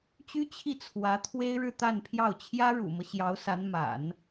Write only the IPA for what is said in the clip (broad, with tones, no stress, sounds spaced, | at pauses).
t͡ɕ y˥ t͡ɕʰ i˥˩ t͡sʰ w ä˧˥ t̪ʰ w e˥ ɪ̯ ɻ ɻ̩˥˧ t̪ a˥˧ n pʰ j ɑ˥˩ ʊ̯ t͡ɕʰ j ä˥ ɻ ṵ˨˩ m ɤ˦ ɕ j ɑ˧˥ ʊ̯ s a˧˥ n m a̰˨˩˦ n